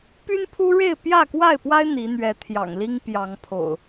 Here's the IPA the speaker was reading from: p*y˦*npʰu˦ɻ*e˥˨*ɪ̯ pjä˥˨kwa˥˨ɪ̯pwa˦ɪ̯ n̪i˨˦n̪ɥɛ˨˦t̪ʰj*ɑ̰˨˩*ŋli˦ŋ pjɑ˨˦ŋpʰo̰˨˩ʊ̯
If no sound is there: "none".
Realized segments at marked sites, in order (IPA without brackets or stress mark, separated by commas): y˦, e˥˨, ɑ̰˨˩